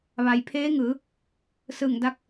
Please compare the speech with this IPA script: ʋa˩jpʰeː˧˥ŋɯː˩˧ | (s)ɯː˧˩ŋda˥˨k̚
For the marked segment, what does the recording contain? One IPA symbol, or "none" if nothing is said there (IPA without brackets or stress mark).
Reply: s